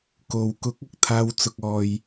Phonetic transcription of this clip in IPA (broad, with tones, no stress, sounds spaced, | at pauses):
k o˨˧ w k ʊ˨˥ k̚ ɐ˨ k̚ t̪ʰ aː˧ w t͡s ʊ˨ k̚ ɔː˨ j